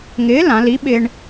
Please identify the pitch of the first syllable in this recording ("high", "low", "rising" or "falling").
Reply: rising